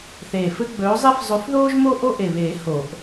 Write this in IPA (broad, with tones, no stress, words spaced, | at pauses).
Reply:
θeː˨˩fɘ˦ ɡ͡bɵː˨˦zˤe˦f zˤɵ˨˦fðoː˦ʒmo˦ ʔo˦ʔe˨˩βeː˨˩˦ ho˨˩˦ʔ